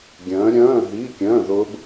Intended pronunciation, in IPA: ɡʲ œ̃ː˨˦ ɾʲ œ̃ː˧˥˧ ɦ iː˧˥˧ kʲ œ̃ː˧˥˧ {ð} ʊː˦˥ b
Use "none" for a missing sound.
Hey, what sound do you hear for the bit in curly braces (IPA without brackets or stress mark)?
ð